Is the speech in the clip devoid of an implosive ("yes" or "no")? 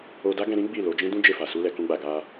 yes